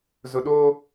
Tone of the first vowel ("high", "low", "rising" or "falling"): low